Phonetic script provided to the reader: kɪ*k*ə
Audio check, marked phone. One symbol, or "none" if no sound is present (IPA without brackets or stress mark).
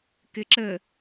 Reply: ǁ